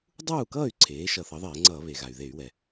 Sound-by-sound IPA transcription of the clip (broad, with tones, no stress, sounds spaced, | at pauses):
dˤ uː˥˨ k ʌː˥˨ y̯ ǀʰ eː˩˥ ʃ ʌ˧˩˧ θ ʌ˩˥ ðˤ eː˧˩˧ ŋ͡ǀ ʌː˧˩˧ β e˩ ɣ a˩ y̯ ð e˧˩˧ y̯ w ɛ˩